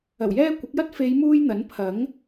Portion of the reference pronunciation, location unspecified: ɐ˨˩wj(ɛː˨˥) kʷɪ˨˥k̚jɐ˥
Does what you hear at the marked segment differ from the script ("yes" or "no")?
yes